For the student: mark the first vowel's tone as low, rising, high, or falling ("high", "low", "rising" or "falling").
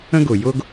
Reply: high